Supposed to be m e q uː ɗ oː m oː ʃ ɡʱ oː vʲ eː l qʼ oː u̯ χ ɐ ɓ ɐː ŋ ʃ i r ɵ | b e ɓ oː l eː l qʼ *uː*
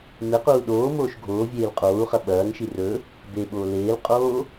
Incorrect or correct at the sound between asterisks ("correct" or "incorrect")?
incorrect